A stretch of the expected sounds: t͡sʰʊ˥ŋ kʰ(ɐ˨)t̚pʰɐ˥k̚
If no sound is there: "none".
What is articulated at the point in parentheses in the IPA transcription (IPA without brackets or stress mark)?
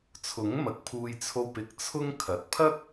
ɐ˨